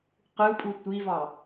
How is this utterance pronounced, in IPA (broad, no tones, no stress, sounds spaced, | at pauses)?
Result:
q ɯ pʼ u tʷ i v ɑ